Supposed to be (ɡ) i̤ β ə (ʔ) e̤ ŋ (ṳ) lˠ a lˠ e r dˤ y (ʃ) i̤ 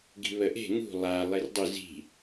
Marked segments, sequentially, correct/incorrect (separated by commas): correct, correct, correct, incorrect